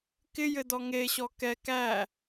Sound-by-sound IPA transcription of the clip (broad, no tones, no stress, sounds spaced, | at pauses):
k ɪ j ɘ d ɔ ŋ e ɕ ɔ k ɛ k æ